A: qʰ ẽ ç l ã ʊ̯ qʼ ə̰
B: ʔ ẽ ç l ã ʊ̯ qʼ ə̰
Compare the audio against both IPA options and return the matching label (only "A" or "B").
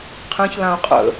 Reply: A